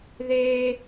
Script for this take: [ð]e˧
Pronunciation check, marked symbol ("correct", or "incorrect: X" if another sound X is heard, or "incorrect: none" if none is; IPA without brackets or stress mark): correct